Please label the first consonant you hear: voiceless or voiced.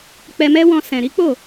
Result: voiceless